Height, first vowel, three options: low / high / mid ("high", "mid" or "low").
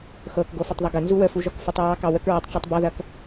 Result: mid